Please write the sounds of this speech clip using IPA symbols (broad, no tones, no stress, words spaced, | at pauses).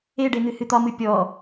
eɖe n̪ɨhɨt̪ɒmɨ pʲɔ